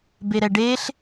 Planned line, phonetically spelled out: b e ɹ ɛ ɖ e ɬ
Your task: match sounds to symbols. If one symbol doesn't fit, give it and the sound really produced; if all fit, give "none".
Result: ɹ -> ɾ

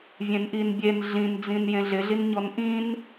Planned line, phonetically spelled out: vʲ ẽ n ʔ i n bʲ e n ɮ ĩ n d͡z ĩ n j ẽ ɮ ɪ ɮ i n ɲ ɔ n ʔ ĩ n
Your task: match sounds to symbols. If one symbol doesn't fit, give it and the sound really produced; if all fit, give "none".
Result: none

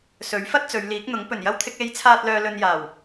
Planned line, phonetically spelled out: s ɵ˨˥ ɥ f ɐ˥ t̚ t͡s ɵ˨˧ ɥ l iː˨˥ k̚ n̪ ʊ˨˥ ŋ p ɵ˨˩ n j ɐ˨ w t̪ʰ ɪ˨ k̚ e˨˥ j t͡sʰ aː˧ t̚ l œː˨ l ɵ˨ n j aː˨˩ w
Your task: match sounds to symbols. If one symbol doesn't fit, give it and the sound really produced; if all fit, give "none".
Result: none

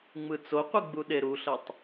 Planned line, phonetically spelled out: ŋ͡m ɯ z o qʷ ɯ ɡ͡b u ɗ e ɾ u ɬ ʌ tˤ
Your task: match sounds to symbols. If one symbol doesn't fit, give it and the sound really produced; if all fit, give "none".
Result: z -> t͡s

